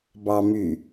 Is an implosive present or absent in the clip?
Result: absent